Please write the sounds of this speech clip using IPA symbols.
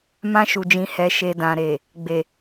m ã˧ ʃ u˨ d͡ʒ ĩ˨ h ɛ˨ ʃ e˨ d ã˨ ɾ e˨ | ɡ͡b e˨

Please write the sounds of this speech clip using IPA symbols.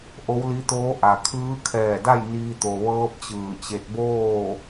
ʔ o˧˥ w l i˧˥ t̪ oː˧˥ ʔ a˩ kʰ ɯː˧˥ kʰ ɛː˧˩ d a˥˨ j n iː˧ t̪ o˩ ʋ ɤː˧˥ p̚ t͡ɕ ɯː˧˩ t͡ɕ e˧ t̚ b oː˥˨

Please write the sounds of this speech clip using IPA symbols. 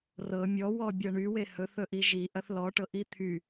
r ɤ mʲ ɔ w ɔ bʲ ɤ ɳ y w e h ɵ θ ɵ ʔ i ʒ i ʔ ɐ θ l ɔ ʈ ɤ ʔ i t̪ʰ y

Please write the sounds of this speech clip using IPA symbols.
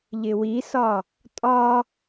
ʎ ɪ w i s ɒ | tʼ ɒ

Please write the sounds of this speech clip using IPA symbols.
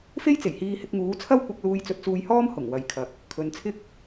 f e˥ j t͡s e˨˩ j h iː˧ h ɪ˧ k̚ ŋ uː˨˥ t͡sʰ ɐ˥ w kʷ ɐ˧ k̚ l uː˧ j t͡s ɵ˧ t̚ t͡s uː˧ j h ɔː˥ m h ʊ˨˩ ŋ w ɐ˨ j kʰ ɐ˨ k̚ | kʰ ɵ˨˧ n t͡sʰ ɪ˥ k̚

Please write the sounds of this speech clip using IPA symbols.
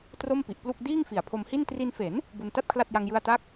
t r o˥˩ m p i˨˩ ʔ p l u˥˩ k̚ d iː˥˩ ŋ f i˨˩ a̯ pʰ o˧ m h i˥˩ n t r i˧ n f e˩˦ n | b u˧ n t a˥˩ t̚ kʰ l a˥˩ t̚ j a˧ ŋ j ɯ˧ a̯ t a˦˥ k̚

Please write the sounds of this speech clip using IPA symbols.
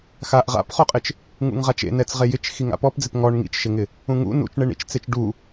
x a ʔ ʁ a̰ p χ o qʼ ɪ t͡ʃ | ŋ ṵ ŋ ʁ a t͡ʃ ḛ n ɛ t͡s ʁ e j ɪ t͡ʃ x i ŋ a̰ p ɔ p d͡z ɪ p ŋ ɔ ɳ ŋ ḭ t͡ʃ ʃ ɪ ŋ ɪ | ũ ŋ ṵ n ṵ t͡ʃ ɳ e ɳ ḭ t͡ʃ t͡s e t͡ʃ ɖ u

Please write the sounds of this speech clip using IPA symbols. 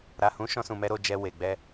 ɾ a˨ h ũ˨˦ ʃ ɔ̃˧ s ũ˨ m ɛ˧ ɾ o˨ d͡ʒ ɛ˨ w e˨ ɡ͡b ɛ˧

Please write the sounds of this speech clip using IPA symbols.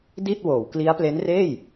d i˥˩ t̚ w oː˩˦ w k l i˦˥ a̯ p l e˦˥ n r eː˥˩ j

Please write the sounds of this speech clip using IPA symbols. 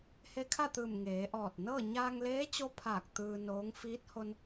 h e˧˥ kʰ a˥˨ t̪ ɯː˧˩ m ŋ eː˩˧ ʔ ɔː˧˩ t̚ n ɤː˥˨ ɲ aː˧ ŋ l eː˧˥ t͡ɕ o˧˥ pʰ aː˧˩ k̚ t̪ ɯː˧ n oː˧˥ ŋ f iː˧˥ t̚ h o˧ n

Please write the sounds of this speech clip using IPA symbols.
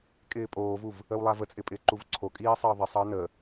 kʼ ɪː pʼ oː v u v | ə w lˠ a v ə t͡sʼ ɪ pʼ ɪː ǃ u v ǀʰ o kʼ iː sˤ ɪ ə̯ ðˤ i sˤ əː n ə

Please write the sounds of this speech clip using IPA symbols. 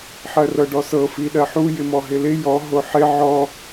ħ ɜ r ɤ ɖ ɔ s ɤ f i ɗ ɜ ħ u j ɪ m ɔ ɦ ɪ l ɪ j ɔ ɦ o ħ ɪ ʕ ɔ

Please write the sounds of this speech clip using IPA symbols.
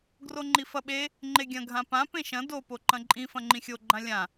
ɡ r o ŋ͡ǃ i f ɐ ɓ e | ŋ͡ǃ e ɡʲ ɐ̃ ɡʱ ã p ã p ẽ ʃ ɐ̃ d o p o ǃ ɐ̃ ǃʼ ĩ f ɐ̃ ŋ͡ǃ ĩ xʲ o ɡ͡ǃ ã lʲ ã

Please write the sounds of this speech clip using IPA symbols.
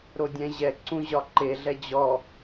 ɾ o dʲ ɛ̃ ʑ ɛ ǀ ũ ʑ ɒ ǃ e ɮ ɛ d͡ʑ ɔ

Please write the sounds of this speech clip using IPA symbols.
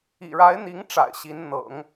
ḭ˨˩ ɻ a˧˥ ɪ̯ n̪ i˧˥ ŋ ʈ͡ʂ a̰˨˩ ɪ̯ ɕ i˧˥ n n̪ ɤ̰˨˩˦ ŋ

